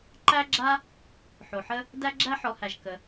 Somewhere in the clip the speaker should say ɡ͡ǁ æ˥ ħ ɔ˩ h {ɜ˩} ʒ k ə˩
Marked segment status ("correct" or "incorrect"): incorrect